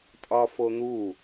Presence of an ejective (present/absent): present